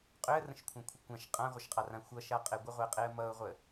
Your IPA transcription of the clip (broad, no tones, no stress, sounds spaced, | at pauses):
qʼ ʏ ə̯ r ə̃ ʃ kʷʰ ã kʷʰ ə kʷ ã ʃ qʼ ã ʁʷ ʌ ʃ qʼ ɑ r ã xʷ ʌ ʃ a qʼ e ɡʷ ə ʁʷ e qʼ e ə̯ m ʌ ʊ̯ ʁʷ ə